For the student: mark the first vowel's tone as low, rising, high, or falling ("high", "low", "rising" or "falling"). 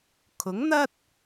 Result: rising